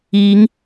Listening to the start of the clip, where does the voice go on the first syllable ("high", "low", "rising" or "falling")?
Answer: rising